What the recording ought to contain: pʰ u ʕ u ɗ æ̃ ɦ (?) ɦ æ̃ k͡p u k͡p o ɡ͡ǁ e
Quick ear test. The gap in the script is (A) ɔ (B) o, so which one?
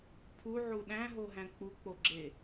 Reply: B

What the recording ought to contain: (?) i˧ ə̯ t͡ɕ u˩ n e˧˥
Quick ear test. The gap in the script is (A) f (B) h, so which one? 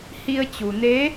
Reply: B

